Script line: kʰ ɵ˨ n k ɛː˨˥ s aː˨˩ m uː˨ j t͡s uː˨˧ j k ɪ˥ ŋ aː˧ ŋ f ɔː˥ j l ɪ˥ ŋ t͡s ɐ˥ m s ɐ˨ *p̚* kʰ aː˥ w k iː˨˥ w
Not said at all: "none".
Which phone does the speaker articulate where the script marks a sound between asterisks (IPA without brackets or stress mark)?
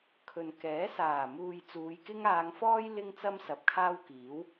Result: p̚